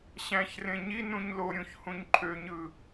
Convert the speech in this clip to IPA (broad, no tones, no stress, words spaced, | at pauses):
ɕæ̃çrẽ ɲi nũɲloɾʲũç hũɲǃʰøɲɯ